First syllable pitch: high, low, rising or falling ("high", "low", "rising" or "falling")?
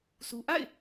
low